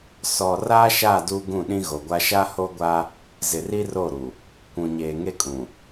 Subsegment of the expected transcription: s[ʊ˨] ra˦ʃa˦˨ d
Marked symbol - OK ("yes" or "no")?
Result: no